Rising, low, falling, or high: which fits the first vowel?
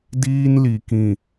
high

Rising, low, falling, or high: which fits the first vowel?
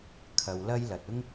low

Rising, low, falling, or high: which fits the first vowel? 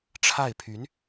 falling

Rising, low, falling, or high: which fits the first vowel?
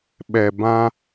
low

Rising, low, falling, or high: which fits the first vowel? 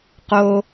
low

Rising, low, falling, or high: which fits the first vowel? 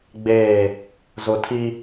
falling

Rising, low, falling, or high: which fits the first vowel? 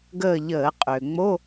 falling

